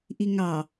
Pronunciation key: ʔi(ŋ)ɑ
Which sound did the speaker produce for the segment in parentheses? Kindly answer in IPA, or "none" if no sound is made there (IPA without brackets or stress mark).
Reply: ŋ